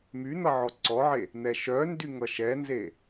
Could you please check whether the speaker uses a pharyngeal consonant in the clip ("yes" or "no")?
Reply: yes